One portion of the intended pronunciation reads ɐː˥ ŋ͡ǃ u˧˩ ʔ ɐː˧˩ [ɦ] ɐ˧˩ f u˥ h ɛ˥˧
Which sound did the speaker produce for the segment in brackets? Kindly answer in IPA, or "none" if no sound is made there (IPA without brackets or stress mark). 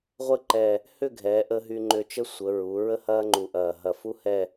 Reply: ɦ